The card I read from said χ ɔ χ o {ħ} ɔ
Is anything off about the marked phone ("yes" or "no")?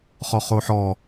no